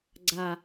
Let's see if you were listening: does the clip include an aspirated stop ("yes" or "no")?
no